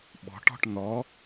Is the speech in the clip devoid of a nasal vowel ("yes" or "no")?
yes